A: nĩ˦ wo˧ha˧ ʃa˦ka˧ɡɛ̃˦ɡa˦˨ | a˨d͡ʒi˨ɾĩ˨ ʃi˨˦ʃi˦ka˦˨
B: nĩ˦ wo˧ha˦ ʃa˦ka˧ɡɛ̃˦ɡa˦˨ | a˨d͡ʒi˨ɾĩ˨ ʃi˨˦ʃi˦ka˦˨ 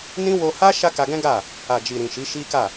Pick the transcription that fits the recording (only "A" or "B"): B